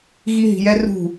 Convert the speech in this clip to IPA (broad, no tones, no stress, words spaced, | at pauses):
ɣiɦi̤jɛrṳ